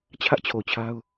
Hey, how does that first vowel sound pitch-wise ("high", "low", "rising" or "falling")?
high